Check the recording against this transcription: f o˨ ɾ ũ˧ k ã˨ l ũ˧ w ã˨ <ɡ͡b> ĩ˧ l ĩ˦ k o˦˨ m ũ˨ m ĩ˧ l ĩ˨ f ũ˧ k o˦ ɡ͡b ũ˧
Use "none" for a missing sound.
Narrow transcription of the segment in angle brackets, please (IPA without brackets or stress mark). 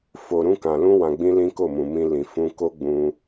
ɡ͡b